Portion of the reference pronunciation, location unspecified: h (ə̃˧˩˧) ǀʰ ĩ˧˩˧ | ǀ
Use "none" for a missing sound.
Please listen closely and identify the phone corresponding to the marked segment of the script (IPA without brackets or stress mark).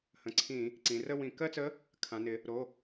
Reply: ə̃˩˧˩